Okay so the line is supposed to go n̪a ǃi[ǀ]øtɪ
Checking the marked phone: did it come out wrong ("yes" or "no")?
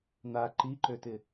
yes